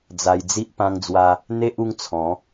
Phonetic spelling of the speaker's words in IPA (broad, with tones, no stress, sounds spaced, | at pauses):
d͡z a˧ j d͡z i˦ ʔ p ã˦ ŋ d͡z w a˦ | n̪ e˦ ʔ u˦ ŋ t͡sʰ ɔ̃˨˦